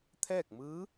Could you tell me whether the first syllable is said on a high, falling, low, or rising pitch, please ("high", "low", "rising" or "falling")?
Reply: falling